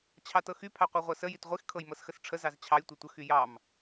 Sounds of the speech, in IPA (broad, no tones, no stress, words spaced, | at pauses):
t͡ɕʰɑtɤxy pʰɑqʷɑʁʷɤsə jitʁʷix kʰɤjmɤsxəsʈ͡ʂʰə zɑzt͡ɕʰɑj tʷɤtʷə xyjɑm